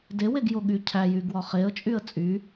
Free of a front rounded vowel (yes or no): no